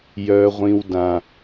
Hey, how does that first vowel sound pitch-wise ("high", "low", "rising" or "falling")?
low